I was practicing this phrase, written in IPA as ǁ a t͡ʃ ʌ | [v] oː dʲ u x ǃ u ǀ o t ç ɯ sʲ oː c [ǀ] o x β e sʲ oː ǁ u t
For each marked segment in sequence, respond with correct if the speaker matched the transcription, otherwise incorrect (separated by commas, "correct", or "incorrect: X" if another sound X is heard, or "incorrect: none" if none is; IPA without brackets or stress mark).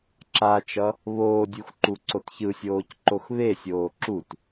incorrect: β, incorrect: ǃ